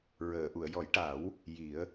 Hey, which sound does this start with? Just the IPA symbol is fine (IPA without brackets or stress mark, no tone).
ɹ